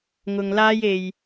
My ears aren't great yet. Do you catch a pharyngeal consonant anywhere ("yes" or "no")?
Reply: no